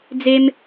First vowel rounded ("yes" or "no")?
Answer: no